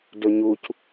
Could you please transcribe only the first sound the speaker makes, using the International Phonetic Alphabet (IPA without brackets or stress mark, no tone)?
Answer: d